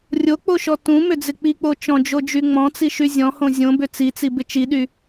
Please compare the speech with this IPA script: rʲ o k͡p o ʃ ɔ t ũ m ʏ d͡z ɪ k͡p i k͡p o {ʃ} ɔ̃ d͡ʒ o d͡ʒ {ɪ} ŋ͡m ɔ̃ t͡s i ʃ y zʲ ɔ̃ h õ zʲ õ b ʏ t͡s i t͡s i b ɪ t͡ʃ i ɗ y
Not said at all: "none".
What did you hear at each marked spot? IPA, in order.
t͡ʃ, y

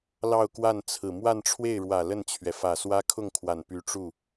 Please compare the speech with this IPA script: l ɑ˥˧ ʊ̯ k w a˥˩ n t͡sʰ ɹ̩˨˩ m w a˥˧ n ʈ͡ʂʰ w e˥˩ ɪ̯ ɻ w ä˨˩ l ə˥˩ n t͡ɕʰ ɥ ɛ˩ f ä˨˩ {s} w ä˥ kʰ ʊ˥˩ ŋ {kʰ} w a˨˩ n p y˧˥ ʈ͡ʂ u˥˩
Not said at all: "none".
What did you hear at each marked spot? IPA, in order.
s, kʰ

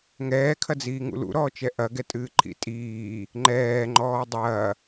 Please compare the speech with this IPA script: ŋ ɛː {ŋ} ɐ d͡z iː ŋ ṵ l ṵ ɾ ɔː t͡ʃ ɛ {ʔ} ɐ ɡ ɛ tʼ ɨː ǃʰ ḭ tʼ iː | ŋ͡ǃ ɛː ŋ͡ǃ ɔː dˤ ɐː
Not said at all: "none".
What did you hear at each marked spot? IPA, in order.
kʰ, ʔ

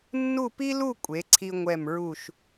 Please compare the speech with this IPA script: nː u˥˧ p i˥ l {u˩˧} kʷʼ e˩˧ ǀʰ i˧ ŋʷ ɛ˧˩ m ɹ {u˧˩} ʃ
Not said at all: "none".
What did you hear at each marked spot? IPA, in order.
u˥˧, u˧˩

